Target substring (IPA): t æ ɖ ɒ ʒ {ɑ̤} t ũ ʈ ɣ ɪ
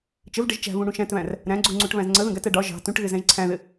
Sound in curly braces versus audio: correct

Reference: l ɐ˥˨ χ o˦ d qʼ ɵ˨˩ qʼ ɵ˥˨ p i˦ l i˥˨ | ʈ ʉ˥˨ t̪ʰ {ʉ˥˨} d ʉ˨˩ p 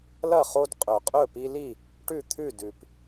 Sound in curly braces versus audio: correct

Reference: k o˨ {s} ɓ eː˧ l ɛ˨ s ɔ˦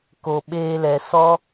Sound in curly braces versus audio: incorrect: none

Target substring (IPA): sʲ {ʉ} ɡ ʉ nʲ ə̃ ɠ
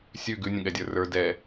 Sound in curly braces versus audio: correct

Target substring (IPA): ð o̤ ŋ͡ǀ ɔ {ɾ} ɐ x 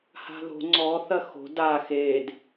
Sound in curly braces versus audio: incorrect: θ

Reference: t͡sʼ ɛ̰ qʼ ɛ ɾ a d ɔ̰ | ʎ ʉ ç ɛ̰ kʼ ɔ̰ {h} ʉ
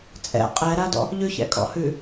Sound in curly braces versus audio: correct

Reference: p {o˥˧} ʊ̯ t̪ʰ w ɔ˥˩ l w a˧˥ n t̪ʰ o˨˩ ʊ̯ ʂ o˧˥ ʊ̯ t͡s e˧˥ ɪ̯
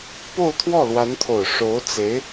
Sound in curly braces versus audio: correct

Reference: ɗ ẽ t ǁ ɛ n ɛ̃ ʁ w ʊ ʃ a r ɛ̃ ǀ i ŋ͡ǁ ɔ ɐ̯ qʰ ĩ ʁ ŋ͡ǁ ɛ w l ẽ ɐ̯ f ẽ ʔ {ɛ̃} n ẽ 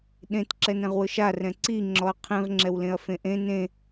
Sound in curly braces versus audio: incorrect: ẽ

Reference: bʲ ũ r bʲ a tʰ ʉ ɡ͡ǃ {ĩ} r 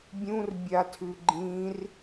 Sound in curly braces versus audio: correct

